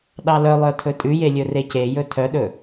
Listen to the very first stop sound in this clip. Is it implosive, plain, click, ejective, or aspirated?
implosive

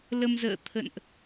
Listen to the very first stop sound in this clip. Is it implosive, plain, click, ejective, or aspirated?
aspirated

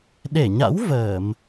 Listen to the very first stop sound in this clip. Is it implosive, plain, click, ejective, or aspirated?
implosive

